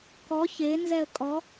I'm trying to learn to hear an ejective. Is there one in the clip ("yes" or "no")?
yes